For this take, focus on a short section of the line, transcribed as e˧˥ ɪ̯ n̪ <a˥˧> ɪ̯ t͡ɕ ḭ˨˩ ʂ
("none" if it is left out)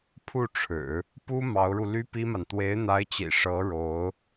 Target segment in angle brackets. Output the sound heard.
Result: a˧˥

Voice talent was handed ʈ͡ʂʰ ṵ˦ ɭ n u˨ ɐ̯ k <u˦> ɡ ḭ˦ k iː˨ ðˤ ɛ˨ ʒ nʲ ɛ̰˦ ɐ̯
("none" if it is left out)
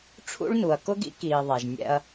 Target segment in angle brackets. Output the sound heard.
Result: ʊ˦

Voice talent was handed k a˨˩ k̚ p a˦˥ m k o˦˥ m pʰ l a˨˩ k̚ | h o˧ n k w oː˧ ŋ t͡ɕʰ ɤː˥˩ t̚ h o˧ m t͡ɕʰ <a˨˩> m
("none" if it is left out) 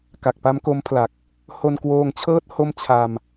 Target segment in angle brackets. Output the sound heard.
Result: a˧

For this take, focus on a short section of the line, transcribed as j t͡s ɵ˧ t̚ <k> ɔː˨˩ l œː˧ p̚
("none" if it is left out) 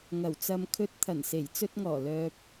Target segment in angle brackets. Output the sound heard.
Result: ŋ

